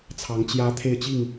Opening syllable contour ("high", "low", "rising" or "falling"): rising